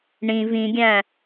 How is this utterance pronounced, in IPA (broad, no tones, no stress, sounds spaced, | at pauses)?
ɳ ĩ v ĩ ɡʲ æ̃